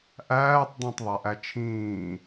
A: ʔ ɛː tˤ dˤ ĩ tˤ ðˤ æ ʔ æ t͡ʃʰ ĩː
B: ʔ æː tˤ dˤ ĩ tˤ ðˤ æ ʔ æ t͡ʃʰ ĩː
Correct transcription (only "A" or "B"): B